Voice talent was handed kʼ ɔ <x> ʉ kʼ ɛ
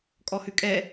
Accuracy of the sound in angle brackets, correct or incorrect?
incorrect